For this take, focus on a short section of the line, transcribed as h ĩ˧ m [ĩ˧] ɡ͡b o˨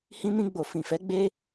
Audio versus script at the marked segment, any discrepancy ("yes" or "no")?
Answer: no